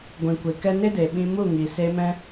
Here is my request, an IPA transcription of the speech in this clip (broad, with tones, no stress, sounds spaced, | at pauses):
ɡʷ ĩ˨ kʷ e˨ k ɛ˧ n e˦ d e˨ ɓ ĩ˧ m u˦˨ ŋ i˨ s e˧ m ɛ̃˦